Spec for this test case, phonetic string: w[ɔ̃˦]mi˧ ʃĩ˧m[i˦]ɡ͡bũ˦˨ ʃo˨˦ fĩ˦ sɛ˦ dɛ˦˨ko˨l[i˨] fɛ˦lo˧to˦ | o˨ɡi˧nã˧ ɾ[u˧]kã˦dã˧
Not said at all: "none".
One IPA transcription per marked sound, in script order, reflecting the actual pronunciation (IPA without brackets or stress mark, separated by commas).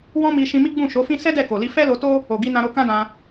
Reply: ɔ̃˦, i˦, i˧, o˧